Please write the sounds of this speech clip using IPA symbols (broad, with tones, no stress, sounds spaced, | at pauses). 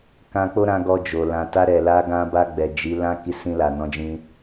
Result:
k ã˧ k͡p o˦ ɾ ã˧ ɡ ɔ˧ d͡ʒ o˨ l ã˨ t a˧ ɾ ɛ˨ l a˧ ɡ ã˧ b a˧ ɡ͡b ɛ˨ d͡ʒ i˨˦ l ã˦ k i˧ s ĩ˧ l a˨ n ɔ̃˨˦ d͡ʒ ĩ˧